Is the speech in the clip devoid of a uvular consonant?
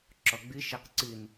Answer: no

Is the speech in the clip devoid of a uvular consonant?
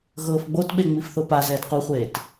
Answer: no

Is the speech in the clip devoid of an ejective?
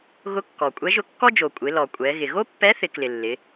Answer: no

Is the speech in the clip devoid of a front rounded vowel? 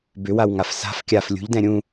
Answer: no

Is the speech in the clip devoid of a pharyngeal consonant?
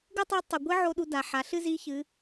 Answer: no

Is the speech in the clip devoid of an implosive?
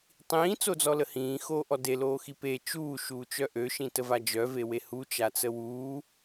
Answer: yes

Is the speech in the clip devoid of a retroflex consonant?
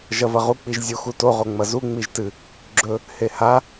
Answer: yes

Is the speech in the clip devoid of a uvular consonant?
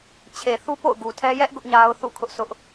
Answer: yes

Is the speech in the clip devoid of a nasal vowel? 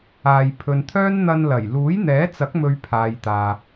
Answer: yes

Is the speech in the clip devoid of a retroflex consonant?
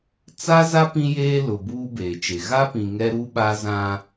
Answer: yes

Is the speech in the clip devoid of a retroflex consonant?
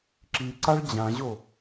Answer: no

